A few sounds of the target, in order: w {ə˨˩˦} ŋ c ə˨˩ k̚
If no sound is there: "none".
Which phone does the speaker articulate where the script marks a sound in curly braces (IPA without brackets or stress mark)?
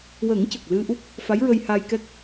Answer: ə˨˩˦